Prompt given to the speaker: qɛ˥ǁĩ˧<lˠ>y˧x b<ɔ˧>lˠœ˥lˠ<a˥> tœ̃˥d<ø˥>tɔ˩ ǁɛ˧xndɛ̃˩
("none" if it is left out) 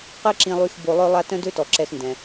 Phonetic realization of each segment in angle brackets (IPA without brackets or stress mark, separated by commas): lˠ, o˧, a˥, ø˥